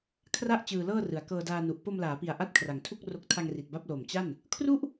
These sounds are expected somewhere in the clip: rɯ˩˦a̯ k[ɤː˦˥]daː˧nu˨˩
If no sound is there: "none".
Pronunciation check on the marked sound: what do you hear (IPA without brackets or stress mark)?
ɤː˧